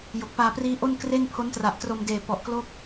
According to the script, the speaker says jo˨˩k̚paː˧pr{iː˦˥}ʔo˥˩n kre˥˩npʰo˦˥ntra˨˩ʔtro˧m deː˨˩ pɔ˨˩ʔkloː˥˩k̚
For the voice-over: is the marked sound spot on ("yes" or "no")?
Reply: yes